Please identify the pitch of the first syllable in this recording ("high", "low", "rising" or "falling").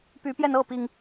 rising